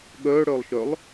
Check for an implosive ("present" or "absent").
present